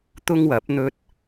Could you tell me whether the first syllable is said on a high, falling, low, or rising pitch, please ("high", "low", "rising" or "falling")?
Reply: high